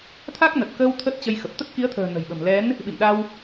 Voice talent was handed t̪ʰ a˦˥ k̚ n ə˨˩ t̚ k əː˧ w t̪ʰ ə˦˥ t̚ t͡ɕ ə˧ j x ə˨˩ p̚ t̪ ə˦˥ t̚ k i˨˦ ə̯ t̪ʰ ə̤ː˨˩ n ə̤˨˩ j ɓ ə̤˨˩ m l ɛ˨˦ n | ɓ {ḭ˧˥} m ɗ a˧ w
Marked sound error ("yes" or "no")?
yes